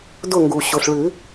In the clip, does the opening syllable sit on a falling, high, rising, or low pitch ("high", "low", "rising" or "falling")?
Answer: falling